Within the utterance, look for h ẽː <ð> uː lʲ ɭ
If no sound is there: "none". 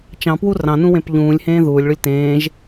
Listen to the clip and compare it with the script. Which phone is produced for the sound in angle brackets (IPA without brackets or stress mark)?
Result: ð